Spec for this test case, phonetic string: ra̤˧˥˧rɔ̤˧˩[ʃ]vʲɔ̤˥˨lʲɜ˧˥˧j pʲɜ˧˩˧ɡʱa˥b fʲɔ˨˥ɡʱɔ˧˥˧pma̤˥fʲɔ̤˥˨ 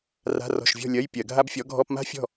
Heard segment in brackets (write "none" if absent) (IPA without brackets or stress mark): ʃ